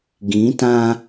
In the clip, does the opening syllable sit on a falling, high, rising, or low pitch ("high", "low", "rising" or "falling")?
rising